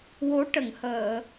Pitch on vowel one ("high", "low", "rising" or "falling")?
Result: rising